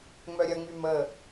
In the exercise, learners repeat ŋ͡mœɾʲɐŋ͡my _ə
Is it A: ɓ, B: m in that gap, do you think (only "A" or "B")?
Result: B